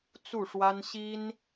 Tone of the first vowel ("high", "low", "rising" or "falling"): falling